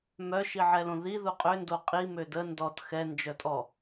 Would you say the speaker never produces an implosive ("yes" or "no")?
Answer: yes